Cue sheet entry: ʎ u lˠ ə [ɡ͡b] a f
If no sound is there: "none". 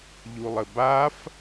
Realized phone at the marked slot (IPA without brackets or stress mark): b